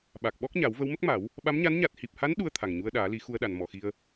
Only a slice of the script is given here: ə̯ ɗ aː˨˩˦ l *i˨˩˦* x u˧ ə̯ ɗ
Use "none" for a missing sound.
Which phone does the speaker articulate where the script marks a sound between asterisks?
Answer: i˨˩˦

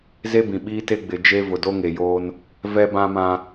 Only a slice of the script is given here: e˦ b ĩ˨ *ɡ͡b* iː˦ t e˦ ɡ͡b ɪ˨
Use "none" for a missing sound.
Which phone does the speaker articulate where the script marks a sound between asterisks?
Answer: ɓ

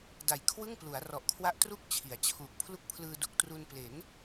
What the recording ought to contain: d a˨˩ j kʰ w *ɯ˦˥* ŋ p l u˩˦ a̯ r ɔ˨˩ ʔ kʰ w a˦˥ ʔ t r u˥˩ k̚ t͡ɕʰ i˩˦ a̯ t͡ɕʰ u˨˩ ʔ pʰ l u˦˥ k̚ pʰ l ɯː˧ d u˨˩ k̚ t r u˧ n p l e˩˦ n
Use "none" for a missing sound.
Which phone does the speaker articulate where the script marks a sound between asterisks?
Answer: ɯ˥˩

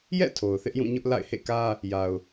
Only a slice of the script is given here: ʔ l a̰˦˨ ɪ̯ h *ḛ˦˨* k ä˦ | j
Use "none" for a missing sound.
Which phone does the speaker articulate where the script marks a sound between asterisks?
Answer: ḛ˦˨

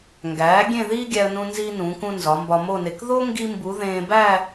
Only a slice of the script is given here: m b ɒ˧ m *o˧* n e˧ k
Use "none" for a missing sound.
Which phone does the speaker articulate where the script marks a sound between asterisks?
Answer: o˥˧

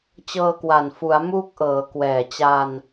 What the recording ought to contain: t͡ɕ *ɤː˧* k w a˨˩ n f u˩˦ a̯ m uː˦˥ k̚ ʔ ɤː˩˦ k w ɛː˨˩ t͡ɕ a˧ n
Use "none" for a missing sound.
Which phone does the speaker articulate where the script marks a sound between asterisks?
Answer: ɤː˧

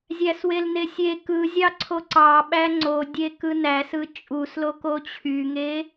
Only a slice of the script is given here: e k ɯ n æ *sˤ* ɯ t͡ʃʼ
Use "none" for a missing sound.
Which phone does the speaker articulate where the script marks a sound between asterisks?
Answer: s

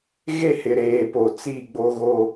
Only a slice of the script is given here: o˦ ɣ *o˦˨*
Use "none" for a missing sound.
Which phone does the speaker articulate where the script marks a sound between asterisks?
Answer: o˦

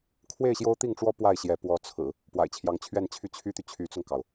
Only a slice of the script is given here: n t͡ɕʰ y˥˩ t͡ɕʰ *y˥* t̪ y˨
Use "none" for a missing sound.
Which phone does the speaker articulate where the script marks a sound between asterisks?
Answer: y˥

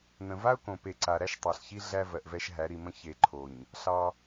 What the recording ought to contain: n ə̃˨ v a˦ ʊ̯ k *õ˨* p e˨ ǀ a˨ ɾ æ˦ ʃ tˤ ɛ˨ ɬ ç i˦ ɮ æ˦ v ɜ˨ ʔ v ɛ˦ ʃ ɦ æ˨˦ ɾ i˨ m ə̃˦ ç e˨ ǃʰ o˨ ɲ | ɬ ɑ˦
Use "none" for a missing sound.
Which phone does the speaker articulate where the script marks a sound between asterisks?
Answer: õ˨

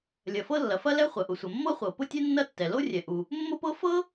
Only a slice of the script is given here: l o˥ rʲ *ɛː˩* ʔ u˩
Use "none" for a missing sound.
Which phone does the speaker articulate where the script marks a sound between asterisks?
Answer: ɛ˩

